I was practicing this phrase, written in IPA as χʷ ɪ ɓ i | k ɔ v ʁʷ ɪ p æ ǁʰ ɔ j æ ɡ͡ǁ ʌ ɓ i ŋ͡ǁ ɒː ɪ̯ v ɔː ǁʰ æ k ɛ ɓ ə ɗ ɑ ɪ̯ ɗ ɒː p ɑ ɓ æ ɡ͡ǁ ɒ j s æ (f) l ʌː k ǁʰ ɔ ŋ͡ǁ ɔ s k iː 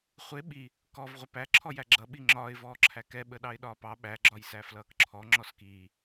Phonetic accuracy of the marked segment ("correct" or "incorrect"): correct